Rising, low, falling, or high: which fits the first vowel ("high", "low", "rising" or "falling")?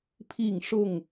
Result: falling